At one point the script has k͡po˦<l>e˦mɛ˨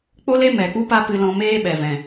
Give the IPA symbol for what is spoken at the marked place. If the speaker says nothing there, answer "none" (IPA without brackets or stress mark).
l